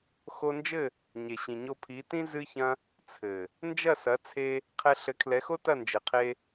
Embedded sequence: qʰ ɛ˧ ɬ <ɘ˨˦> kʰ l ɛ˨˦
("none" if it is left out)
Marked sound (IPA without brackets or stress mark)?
ɘ˨˦